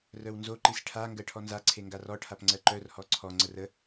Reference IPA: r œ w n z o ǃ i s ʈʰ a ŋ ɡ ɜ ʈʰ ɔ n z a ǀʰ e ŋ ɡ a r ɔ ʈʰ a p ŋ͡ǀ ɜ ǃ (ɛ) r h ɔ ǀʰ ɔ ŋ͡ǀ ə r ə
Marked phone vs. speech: incorrect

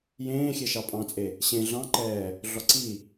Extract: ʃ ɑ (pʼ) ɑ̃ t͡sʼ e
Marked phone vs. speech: correct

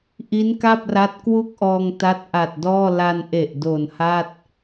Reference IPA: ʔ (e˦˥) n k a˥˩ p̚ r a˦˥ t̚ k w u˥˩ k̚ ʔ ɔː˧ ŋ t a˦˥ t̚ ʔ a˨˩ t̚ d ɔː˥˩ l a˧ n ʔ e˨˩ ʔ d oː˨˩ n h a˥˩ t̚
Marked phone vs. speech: incorrect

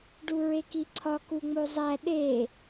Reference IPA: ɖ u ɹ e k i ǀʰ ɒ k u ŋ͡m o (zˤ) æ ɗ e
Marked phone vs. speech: correct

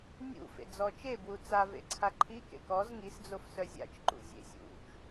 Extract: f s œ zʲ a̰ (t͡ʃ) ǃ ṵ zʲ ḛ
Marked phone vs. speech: correct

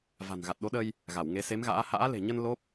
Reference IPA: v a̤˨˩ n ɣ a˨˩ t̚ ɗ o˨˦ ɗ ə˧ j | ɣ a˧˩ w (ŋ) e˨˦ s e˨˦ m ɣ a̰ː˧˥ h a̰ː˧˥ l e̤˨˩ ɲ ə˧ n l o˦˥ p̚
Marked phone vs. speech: correct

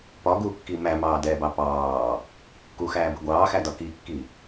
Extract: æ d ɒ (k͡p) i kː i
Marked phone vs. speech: incorrect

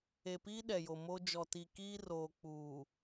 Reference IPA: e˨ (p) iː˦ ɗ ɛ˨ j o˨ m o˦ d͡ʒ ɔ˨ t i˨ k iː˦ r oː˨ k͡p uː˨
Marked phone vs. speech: correct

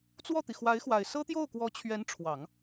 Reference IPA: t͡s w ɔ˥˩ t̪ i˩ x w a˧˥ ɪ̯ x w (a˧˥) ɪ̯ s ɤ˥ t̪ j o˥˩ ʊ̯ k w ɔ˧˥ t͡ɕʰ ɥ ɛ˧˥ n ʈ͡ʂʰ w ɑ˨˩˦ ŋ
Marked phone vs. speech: incorrect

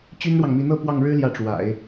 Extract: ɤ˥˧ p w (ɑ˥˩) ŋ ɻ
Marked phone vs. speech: correct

